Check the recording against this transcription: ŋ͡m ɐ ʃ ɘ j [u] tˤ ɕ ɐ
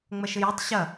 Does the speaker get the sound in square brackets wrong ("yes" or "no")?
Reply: no